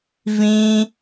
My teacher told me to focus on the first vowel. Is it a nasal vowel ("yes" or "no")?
yes